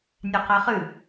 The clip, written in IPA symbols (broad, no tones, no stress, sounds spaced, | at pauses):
nʲ a q a χ ɨ